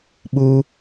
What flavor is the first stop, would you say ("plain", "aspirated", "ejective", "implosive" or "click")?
implosive